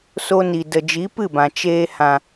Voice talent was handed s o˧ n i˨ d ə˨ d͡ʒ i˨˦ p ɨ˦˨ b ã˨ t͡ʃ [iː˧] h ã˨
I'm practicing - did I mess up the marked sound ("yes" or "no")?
yes